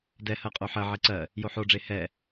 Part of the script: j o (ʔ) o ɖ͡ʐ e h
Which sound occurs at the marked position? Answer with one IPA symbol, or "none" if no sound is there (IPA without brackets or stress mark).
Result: ħ